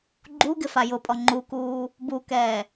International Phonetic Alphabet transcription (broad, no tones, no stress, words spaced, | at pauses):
ɡ͡ǃuɡɪ fajʊpʼɔ ŋ͡ǃukuː | bukɛː